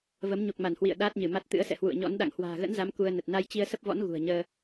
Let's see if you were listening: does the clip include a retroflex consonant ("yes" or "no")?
no